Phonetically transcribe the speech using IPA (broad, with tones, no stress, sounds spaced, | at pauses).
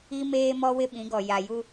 i˦ m eː˦ m ɔ˦ w ɪ˦ ɓ ĩ˨˦ ɡ ɔ˨ j a˨ j u˦